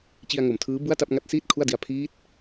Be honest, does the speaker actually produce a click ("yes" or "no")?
no